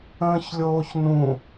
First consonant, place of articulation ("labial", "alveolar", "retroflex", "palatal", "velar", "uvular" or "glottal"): palatal